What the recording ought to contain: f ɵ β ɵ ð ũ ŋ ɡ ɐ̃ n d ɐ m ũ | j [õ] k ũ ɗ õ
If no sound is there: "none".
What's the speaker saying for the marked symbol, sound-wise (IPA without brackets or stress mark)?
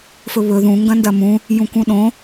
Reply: ũ